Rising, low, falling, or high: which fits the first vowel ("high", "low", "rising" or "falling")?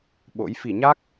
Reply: rising